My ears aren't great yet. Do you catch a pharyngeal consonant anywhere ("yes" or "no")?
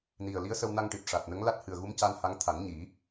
no